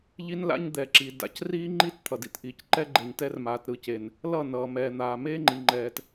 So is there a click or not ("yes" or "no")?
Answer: yes